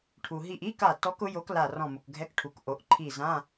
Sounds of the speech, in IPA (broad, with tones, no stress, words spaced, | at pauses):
ʈʰu˩ɦi˧˩ʔi˧˥˧k a˧˩t ɔ˧˥kʊ˧˥ jo˧˥kla˧˩ rɔ̃˧˩mʊ˩kɡʱɛ˧˥˧k ʈʰu˩k ʔo˩ʔǃʰi˧˩zã˧˥˧